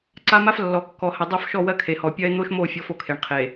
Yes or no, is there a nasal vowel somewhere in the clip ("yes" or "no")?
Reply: no